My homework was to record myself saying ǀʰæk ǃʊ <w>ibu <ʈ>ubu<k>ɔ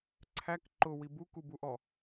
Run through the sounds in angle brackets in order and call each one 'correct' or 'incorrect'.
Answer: correct, incorrect, incorrect

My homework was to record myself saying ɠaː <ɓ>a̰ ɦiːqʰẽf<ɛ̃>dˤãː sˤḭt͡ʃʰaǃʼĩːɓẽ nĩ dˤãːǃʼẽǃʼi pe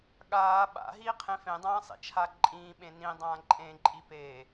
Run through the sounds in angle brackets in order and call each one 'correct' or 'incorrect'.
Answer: correct, incorrect

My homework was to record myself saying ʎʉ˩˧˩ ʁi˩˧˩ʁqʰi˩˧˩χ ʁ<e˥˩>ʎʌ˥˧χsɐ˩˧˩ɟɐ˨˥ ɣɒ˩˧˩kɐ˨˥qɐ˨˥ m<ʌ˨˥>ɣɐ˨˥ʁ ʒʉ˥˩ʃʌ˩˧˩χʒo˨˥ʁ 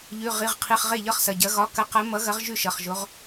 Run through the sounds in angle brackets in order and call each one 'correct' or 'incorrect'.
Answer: correct, correct

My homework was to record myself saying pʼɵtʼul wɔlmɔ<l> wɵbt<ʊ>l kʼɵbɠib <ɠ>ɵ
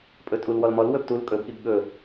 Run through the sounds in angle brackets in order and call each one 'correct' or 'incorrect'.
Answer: correct, incorrect, correct

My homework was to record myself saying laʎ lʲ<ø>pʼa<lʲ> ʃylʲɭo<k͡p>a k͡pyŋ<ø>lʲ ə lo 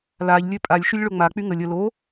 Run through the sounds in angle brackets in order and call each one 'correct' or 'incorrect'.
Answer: correct, correct, incorrect, incorrect

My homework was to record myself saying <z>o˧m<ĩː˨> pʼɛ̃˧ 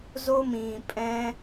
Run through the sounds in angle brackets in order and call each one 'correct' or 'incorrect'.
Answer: correct, correct

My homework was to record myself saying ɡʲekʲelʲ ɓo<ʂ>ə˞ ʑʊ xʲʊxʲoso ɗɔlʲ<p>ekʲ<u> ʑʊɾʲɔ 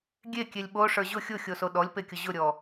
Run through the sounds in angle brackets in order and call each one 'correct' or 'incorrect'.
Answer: correct, correct, incorrect

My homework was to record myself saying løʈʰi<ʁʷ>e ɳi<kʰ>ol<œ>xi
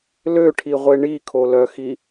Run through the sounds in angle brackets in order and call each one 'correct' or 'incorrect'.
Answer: correct, correct, correct

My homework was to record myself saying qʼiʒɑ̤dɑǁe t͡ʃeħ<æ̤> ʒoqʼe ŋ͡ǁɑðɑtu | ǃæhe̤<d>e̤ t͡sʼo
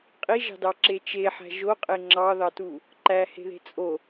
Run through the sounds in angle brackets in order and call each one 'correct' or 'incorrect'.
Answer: correct, incorrect

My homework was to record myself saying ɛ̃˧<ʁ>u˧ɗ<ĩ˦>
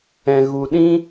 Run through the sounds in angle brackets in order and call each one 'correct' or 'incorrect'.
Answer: incorrect, correct

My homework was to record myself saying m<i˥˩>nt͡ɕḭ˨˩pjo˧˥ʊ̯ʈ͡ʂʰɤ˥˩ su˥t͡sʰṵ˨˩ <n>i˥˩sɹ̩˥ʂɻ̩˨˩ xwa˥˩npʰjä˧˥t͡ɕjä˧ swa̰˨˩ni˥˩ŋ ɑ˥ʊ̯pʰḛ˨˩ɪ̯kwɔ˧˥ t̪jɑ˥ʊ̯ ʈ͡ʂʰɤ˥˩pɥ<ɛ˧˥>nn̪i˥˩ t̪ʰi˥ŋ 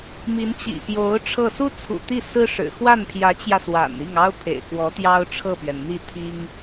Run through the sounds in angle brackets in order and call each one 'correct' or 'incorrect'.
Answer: incorrect, incorrect, incorrect

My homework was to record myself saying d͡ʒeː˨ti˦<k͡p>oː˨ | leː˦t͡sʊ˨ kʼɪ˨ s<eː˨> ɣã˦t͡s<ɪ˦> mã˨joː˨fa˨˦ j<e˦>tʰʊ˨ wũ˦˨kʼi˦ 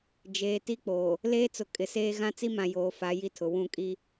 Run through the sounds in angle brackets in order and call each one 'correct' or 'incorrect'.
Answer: correct, incorrect, incorrect, incorrect

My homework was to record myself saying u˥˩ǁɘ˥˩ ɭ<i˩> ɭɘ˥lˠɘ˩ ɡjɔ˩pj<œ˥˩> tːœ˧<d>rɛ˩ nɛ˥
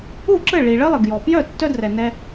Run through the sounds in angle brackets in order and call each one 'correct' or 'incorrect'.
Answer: correct, correct, correct

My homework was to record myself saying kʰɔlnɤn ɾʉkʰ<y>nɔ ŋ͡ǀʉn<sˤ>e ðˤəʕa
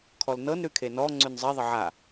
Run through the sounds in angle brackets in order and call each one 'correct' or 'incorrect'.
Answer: incorrect, incorrect

